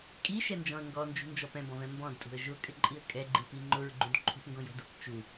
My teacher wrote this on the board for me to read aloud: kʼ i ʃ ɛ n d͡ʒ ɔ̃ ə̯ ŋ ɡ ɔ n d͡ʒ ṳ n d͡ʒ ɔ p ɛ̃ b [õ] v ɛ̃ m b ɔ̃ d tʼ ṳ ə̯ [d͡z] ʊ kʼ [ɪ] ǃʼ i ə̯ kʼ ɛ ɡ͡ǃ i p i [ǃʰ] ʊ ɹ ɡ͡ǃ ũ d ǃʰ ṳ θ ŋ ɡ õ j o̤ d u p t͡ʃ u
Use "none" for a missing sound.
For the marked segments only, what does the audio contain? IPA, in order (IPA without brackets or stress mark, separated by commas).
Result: ɔ̃, ʒ, ɪ, ŋ͡ǃ